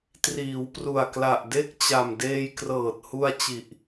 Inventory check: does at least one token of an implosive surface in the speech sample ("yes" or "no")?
no